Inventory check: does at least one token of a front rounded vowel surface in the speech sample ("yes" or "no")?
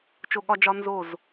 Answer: no